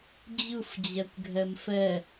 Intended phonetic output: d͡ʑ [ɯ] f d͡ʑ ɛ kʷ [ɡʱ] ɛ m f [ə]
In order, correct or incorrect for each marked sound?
correct, correct, incorrect: ɛ

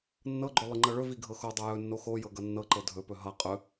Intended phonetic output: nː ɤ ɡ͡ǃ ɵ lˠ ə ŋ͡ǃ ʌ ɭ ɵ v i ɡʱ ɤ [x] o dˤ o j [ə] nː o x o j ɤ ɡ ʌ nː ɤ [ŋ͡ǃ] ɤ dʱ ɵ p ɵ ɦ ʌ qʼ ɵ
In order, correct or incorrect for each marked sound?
correct, incorrect: ɵ, incorrect: ǃ

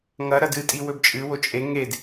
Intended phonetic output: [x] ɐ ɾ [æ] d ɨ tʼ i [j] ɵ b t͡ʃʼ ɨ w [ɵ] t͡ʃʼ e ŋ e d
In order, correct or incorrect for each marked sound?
incorrect: ŋ, incorrect: ɐ, incorrect: w, incorrect: o

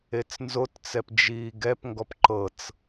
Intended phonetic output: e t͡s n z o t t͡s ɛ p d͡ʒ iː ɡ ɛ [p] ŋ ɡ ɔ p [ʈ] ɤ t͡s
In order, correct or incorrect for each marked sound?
correct, incorrect: ǃ

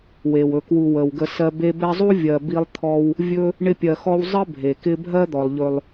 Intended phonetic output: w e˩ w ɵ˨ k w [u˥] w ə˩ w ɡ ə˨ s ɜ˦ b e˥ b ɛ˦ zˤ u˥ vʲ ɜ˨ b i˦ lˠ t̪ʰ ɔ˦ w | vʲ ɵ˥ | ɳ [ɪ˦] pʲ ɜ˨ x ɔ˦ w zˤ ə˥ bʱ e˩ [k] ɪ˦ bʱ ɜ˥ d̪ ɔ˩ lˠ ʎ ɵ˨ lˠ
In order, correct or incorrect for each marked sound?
incorrect: u˨, correct, correct

